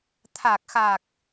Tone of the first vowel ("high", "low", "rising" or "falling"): low